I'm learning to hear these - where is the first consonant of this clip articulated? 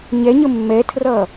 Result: palate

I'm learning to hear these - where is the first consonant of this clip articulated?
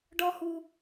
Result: retroflex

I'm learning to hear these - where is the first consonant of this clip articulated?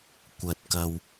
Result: velum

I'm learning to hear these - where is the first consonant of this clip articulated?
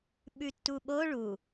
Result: lips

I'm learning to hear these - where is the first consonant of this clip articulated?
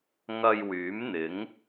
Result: velum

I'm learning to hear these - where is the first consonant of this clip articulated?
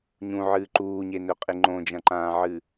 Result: palate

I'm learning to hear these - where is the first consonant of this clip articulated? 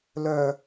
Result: tongue tip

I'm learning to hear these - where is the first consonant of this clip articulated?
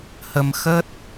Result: throat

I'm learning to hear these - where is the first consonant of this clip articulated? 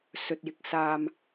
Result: tongue tip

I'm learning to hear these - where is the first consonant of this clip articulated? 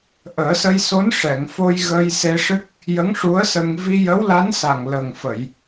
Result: throat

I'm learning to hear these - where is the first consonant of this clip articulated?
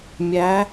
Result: lips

